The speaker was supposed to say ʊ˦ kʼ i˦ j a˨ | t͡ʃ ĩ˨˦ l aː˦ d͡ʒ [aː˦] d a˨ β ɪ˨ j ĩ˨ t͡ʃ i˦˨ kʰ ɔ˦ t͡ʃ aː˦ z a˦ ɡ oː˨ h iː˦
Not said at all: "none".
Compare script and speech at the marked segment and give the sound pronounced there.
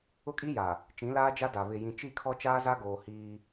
a˦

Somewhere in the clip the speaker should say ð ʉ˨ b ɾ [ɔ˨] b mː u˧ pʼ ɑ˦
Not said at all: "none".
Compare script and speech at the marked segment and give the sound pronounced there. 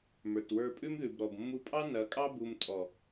ɔ˨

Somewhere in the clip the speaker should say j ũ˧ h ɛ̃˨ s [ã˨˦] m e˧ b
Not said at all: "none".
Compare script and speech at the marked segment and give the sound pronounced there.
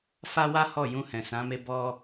ã˨˦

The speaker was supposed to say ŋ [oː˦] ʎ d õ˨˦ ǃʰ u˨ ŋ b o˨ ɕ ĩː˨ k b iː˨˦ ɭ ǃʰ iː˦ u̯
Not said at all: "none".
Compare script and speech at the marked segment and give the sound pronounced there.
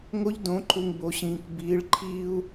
o˦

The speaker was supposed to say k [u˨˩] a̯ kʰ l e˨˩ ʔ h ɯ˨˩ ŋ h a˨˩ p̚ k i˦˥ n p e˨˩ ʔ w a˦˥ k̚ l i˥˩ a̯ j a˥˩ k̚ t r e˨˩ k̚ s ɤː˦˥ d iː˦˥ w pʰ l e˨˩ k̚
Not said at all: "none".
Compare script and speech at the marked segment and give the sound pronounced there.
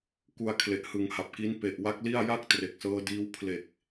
u˧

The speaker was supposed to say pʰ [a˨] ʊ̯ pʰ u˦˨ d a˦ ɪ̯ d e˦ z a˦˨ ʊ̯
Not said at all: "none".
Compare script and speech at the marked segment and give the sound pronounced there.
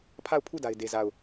a˦˨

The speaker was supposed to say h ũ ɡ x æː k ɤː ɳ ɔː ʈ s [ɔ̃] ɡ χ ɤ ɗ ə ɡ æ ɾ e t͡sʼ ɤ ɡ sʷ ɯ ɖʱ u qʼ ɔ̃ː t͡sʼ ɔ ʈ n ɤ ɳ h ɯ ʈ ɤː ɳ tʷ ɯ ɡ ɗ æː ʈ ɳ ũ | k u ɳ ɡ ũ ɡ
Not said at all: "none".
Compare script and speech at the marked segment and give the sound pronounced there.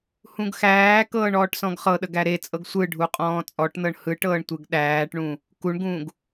ɔ̃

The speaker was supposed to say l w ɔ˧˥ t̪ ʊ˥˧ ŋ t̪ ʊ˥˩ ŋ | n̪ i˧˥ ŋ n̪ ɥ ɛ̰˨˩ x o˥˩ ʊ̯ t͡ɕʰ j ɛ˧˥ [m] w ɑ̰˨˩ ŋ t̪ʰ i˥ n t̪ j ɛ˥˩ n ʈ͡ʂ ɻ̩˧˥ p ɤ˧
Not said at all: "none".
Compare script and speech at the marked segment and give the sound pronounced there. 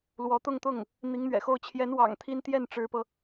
n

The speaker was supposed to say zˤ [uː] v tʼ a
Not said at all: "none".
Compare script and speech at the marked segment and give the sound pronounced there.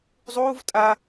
uː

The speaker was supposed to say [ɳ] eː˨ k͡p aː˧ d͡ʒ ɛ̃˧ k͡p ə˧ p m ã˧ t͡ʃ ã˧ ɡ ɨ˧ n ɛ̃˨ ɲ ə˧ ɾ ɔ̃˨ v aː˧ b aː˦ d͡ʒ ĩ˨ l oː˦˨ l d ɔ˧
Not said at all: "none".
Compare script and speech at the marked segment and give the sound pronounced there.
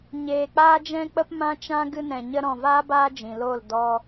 ɲ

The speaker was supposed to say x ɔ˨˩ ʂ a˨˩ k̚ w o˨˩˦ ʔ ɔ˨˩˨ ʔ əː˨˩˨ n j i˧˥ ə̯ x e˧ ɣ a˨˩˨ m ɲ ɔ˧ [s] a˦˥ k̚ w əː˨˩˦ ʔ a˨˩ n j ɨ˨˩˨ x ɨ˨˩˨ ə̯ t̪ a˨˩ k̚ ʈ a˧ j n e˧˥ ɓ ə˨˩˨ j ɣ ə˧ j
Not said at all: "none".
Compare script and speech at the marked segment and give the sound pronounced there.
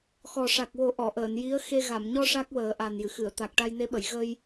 ʂ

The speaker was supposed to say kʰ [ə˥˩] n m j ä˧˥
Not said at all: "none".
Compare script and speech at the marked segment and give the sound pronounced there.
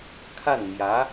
a˥˩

